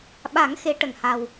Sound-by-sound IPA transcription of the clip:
ɓ a˨˩˦ ŋ x e˧˥ ʈ ə˨˩ ŋ h a˨˩ w

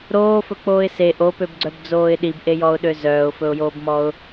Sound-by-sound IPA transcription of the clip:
ɾ oː f ɵ k͡p oː ɪ̯ s e ʔ o p ø b ɡ͡ǀ œ b d͡z oː ɪ̯ ɗ i b ʔ e j ɔ ʊ̯ ɗ ø z œː ʊ̯ f ɵ ʊ̯ j oː b m ɔ ʊ̯

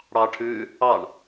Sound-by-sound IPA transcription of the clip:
ɽ ɑ ʈʰ ʉː | ɑ ɳ

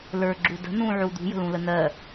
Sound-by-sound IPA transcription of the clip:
l ə˞ ɡ͡ǁ u d ə̤ n ũ ʕ u d̪ ṳ j ə̤ l ũ l ə n̪ ɜ

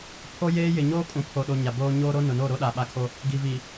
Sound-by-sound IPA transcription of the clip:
pʰ o˦ j eː˦ j ɪ˨ ɲ oː˦ kʼ ũ˨ pʰ o˨ ɗ o˨ ɲ a˨ b oː˦ ɲ oː˦ ɾ o˦ n ʊ˨ n o˦˨ ɾ o˦ ɗ a˨ ɓ a˦ kʰ o˦ | ɡ i˨ v i˨

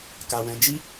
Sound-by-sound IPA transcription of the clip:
k a˨ w ɛ̃˨˦ d͡ʒ i˦

